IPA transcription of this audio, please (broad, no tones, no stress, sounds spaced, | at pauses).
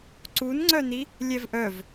ǀ u n ŋ͡ǀ œ n i | lʲ ɛ v ʔ œ v